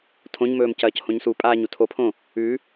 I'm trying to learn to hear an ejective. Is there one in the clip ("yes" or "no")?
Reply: yes